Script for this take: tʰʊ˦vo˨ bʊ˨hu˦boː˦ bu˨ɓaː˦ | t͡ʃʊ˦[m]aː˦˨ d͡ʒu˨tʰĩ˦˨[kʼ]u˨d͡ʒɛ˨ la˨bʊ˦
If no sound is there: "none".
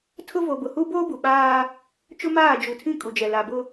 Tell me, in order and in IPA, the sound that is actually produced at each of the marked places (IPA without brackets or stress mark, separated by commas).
m, kʼ